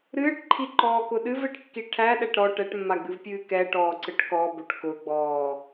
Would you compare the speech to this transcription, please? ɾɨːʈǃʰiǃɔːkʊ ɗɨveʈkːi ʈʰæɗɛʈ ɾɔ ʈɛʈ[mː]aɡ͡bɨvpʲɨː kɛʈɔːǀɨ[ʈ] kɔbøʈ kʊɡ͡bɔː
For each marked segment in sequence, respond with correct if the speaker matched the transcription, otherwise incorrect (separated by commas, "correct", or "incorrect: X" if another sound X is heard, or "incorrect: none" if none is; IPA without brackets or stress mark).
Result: correct, correct